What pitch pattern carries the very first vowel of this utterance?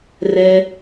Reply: high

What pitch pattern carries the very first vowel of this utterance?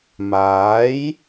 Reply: rising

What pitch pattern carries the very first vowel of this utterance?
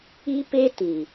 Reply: high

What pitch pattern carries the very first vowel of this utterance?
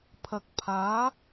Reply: low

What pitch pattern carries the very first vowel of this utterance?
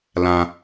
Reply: low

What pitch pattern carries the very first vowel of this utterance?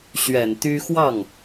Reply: low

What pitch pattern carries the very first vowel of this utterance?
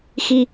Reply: falling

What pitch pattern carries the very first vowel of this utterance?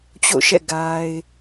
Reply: falling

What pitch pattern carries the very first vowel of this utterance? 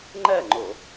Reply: falling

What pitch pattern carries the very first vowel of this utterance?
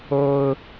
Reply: high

